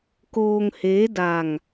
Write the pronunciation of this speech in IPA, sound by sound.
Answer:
k oː˧ ŋ h eː˦˥ d a˧ ŋ

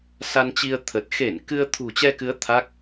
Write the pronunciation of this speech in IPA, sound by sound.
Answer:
s a˧ n t͡ɕ i˧ ə̯ t̪ʰ ə˨˩ t̚ x e˧˩ n k ɨ˧ ə̯ t̪ʰ ṳ˨˩ t͡ɕ ɛ˧ k ɨ˨˦ ə̯ t̪ʰ a˦˥ k̚

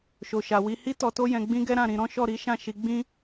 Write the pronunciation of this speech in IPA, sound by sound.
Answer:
ʃ o˨ ʃ a˨ w i˧ h i˦ t ɔ˧ t o˦ j ɛ̃˧ ɡ͡b ĩ˦ ɡ ɛ˦ ɾ ã˦˨ ɾ ĩ˧ ɾ ɔ̃˦ ʃ ɔ˦˨ ɾ i˨˦ ʃ ã˦˨ ʃ i˨˦ ɡ͡b ĩ˦

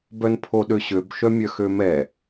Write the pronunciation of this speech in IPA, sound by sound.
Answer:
b œ n pʰ o ɗ ø ɕ ø b ʃ œ mʲ œ x ø m ɛ

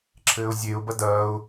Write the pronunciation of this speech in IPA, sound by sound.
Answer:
ǁʰ ɘː ʊ̯ zʲ e ʊ̯ b ɐ d ɐː ʊ̯

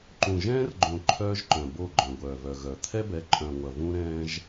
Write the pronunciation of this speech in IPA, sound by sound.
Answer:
ǃ ũ˨ ʒ ɛ̃ː˦ r ɡ͡ǃ õ˨ ǃʰ œː˦ ʒ ǃ œ̃˨ b o˦˨ ɡ͡ǃ œ̃˨ ɡʷ œː˨ v œ˨ ɣ œ˨ t̪ʰ ɛ˦ b ɛ˨˦ ǃʼ œ̃˨ ŋʷ ɐ˨ v ũ˦ ɾ ɛ̃ː˦ ʒ

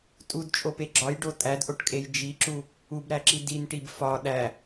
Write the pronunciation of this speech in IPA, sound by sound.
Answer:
tʼ u d t͡ʃʼ o p e ɡ͡ǁ ɒ j ɖ o tʼ æ d ʔ o ʈ kʼ e j d͡ʒ i ǁ u | u b ɾ æ ǁ i d i n ʈ i b f ɒ ɗ æ

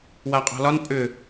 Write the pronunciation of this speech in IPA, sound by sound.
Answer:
w a qʼ ɔ̤ l ɒ n pʼ ʏ

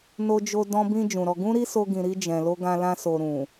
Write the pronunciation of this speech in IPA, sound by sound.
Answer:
n o˧ d͡ʒ o˧ d ɔ̃˧ b ĩ˧ d͡ʒ ũ˨ ɾ ɔ˧ ɡ ũ˦ ɾ i˦ s o˧ ɡ ĩ˨ ɾ i˧ d͡ʒ ɛ̃˨ l o˧ ɡ ã˧ l ã˧ s o˨ ɾ ũ˨

